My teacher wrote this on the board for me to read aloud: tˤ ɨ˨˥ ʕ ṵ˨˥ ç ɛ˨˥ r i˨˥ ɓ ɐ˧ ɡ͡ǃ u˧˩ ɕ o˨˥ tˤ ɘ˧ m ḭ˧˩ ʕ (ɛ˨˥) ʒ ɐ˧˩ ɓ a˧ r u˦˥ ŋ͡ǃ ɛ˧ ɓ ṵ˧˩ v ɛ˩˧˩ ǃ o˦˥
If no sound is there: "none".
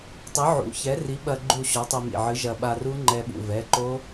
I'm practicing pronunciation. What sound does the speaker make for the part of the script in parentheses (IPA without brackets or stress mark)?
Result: ɨ˨˥